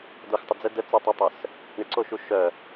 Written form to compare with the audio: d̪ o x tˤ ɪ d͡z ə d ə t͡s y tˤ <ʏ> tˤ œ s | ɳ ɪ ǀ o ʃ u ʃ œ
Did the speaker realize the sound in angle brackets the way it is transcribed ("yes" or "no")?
no